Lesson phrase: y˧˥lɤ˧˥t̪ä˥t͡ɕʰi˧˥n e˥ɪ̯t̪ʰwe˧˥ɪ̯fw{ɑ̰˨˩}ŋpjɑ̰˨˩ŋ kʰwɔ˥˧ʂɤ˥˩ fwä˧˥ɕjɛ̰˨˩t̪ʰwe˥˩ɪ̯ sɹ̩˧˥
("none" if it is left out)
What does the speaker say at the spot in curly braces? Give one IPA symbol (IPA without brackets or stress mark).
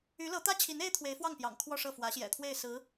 ɑ˥˩